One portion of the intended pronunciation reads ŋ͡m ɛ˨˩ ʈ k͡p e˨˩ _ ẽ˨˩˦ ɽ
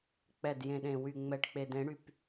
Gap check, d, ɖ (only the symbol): d